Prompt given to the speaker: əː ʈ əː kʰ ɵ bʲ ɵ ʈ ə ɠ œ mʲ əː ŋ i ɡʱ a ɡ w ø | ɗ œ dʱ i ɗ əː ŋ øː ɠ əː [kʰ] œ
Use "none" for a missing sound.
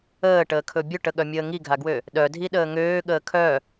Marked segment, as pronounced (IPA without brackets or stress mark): kʰ